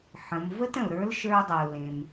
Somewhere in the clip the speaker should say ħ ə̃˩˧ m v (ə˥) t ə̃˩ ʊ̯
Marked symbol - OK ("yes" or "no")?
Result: yes